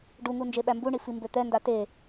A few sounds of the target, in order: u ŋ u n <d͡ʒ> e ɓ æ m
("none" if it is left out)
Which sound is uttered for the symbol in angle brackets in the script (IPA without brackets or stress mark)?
d͡ʒ